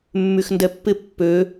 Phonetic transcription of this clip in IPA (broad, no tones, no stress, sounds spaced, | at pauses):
mː y x n d ɛ pː ɪ pː ø